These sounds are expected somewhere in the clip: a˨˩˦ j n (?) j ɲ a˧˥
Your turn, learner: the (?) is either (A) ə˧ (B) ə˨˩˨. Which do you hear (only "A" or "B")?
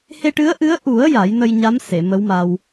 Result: A